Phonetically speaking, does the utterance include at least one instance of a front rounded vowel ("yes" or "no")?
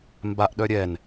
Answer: yes